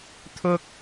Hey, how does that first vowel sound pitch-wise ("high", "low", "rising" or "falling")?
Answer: high